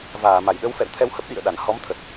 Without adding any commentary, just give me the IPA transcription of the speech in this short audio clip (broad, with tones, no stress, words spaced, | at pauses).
vaː˧˩ma˧˩jɗə˨˦w fɛ̰˧˨wt̪ʰɛ˧whə˦˥p̚ ɗḭ˧˨ə̯ɗa˧˩nhɔ˨˦mt̪ʰə˨˩t̚